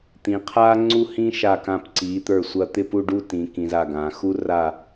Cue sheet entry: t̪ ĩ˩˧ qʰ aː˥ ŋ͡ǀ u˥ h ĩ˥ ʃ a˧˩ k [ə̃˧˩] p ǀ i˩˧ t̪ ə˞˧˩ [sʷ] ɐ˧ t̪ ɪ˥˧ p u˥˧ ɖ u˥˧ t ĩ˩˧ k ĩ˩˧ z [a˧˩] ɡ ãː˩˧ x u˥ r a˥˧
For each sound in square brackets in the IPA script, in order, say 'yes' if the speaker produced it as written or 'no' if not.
no, yes, yes

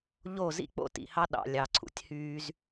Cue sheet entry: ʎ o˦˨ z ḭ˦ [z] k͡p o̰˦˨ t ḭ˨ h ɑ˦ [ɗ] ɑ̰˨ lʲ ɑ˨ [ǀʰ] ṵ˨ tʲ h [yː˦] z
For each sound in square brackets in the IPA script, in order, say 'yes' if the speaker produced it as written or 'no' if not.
no, yes, yes, yes

